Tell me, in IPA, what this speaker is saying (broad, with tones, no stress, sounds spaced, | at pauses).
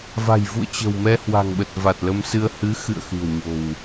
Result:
v a̤˨˩ j v ṵ˧˨ ə̯ t͡ɕ ə̤˨˩ w m ɛ˧ h w a̤˨˩ ŋ ɓ ə˨˩ t̚ v a˨˩ t̚ l ə˧ m s ɨ˧ ə̯ h ɨ˨˦ x ɨ̰˧˨ ə̯ x ɨ̤˨˩ ə̯ ɲ o̤˨˩ w